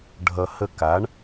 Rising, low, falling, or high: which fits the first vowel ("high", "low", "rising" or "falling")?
low